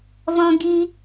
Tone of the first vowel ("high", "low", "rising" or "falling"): high